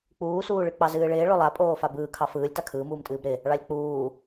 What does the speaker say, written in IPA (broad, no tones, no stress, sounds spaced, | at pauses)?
k͡p uː s uː ɭ ɨ k͡p ɑ z ɨː ɭ ɪː ɭ o lˠ a pʼ oː f a b ɯː kʰ ɑ f ɯː lʲ t a kʰ ɯː m uː m tʼ ɨː b ɾ ɪ | ɭ ɑ lʲ k͡p uː